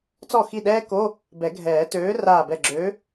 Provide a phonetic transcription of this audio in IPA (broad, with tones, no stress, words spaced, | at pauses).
t͡sɔ˥˩xi˥˩ɗɛː˥ko˧˥˧ | bɛ˨˩˦ɡʱɛː˨˩˦ tøː˨˥raː˧˩bɛ˧˩ ɡ͡ǁø˨˥